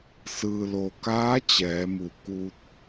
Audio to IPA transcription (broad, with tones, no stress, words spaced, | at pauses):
sɯː˩lo˩kaː˧˥ t͡ɕɛː˩˧mu˩ kuː˧t̚